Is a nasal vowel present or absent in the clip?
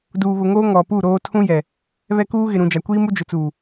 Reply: present